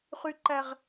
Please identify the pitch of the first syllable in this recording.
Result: low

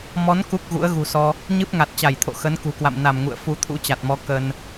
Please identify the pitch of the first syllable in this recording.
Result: rising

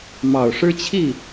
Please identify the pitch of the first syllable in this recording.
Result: low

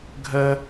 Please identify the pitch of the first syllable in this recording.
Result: high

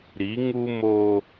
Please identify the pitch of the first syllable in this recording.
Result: rising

